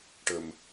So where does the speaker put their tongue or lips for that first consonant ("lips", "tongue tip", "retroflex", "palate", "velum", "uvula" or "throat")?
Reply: retroflex